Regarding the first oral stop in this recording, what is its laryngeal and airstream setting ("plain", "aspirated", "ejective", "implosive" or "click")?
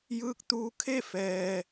plain